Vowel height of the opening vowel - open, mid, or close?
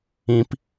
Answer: close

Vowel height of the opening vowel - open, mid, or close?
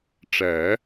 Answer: open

